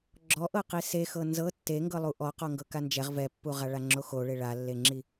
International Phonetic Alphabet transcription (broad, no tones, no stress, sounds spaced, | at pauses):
ɡ͡ǁ ɔ ʔ ɤ q i s e x ɤ n z ɤ tː e ŋ ɡ ɤ lˠ u ʔ ɔ q ɔ ŋ ɡ ɤ k a n d͡ʒ ɛ ʁ v ɛ pː u ʁ a ɭ a ŋ͡ǁ o x o ɭ e ɭ a lː e ŋ͡ǁ i